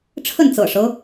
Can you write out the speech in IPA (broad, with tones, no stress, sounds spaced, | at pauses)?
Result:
ʈ͡ʂʰ ə˥˨ n t͡s ɤ̰˨˩ ʂ ɤ˦